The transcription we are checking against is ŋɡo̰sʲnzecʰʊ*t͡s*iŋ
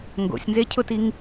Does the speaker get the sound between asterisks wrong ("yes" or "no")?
yes